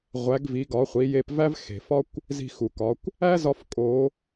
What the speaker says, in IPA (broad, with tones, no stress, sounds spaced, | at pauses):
ʁʷ æ˩˧ ɡ v i˩˧ ɡ ɒ˩˧ χʷ i˩˧ j e˧ p v æ˥ v x e̤˩ f ɒ˥ kʷ | z i̤˧ x u˩ k ɒ˩˧ kʷ | æ˥ z ɒ˧ f kʼ o˩˧